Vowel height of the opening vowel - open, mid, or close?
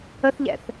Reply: mid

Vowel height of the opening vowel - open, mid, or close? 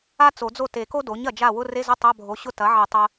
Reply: open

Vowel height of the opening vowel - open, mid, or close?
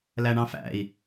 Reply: open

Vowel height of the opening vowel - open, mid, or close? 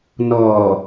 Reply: mid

